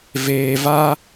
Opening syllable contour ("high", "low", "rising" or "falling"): low